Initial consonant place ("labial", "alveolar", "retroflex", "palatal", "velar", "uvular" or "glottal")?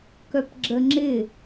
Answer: velar